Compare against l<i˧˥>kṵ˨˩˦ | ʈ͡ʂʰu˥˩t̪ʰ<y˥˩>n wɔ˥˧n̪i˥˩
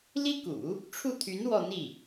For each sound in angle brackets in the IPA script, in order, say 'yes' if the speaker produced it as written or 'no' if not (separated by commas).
no, no